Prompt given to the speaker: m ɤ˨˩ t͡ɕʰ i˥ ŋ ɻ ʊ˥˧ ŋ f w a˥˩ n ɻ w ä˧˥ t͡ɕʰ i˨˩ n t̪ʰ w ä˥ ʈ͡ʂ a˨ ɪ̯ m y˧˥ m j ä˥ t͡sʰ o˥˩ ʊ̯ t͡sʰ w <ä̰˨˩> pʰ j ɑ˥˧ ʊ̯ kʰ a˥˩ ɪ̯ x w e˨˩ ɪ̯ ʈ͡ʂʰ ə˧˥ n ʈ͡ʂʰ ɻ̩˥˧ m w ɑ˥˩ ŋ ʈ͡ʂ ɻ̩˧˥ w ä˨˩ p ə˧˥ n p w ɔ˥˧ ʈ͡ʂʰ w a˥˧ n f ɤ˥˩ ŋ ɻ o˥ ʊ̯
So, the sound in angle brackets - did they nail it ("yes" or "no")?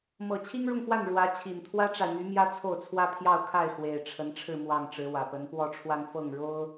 no